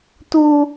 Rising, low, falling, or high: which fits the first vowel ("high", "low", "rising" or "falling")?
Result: high